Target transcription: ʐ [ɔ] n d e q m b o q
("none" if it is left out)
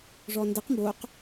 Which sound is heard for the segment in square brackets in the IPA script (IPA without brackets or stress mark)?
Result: ɔ